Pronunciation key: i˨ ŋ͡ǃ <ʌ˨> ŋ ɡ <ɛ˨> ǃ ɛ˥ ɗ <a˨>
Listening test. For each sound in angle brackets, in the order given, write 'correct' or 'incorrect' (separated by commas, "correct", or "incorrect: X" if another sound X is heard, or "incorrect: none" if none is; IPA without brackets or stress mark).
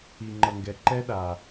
correct, correct, correct